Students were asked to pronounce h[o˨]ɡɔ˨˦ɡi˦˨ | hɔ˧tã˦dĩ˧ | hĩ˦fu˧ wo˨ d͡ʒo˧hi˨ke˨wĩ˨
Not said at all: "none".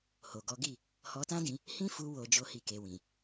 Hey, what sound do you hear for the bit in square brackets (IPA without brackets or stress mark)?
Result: o˨